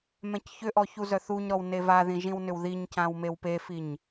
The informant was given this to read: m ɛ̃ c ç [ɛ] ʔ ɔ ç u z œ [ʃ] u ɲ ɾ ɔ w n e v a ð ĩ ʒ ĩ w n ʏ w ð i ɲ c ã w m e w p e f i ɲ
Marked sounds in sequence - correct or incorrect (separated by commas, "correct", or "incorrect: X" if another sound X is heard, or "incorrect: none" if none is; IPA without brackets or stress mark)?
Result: incorrect: ʏ, incorrect: θ